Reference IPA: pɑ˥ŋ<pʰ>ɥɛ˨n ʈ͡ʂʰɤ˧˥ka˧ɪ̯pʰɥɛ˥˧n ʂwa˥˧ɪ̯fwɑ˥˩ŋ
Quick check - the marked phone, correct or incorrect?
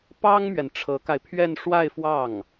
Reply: incorrect